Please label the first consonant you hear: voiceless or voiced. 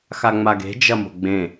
voiceless